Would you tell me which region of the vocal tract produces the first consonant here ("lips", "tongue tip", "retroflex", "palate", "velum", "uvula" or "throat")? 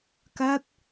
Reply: velum